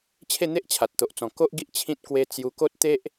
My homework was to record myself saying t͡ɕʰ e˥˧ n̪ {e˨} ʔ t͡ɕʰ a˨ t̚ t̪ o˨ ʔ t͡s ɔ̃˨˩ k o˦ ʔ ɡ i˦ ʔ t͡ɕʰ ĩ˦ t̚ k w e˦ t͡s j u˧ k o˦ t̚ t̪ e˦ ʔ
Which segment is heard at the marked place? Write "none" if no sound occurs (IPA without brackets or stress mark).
e˦